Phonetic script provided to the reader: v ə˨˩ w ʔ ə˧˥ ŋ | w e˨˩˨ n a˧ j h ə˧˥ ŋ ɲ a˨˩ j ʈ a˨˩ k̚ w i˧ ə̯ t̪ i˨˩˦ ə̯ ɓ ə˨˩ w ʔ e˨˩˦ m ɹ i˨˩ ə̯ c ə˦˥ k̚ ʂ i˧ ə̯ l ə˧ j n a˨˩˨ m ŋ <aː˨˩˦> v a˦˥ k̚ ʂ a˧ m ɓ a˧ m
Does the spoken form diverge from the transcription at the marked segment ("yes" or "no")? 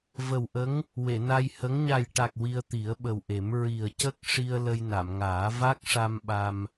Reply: no